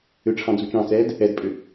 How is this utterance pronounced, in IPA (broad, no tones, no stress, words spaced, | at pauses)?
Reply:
ʏʈ͡ʂʰɑ̃ d͡zut͡ʃɑ̃t͡sɛːd | ɛdpʼʏ